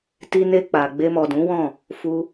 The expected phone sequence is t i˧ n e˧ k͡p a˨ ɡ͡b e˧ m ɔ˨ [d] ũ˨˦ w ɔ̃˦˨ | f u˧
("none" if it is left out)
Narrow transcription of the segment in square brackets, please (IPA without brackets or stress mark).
d